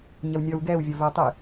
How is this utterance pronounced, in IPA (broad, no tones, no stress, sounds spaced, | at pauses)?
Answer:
ɲ ɐ w nʲ ɔ w ɡ ɛ w vʲ ɔ v ɛ tˤ ɨ